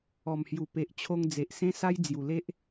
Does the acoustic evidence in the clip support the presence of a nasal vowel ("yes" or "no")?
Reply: yes